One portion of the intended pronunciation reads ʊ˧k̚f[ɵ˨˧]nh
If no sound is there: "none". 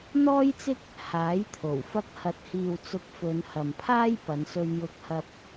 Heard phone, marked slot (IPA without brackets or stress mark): ɵ˨˧